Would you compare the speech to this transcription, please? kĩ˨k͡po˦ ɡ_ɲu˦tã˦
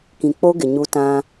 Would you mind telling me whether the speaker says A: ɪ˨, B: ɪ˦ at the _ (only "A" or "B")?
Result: A